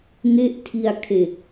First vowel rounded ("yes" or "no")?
no